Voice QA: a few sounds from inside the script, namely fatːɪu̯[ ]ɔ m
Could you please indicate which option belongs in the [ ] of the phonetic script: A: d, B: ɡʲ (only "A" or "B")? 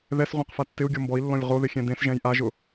B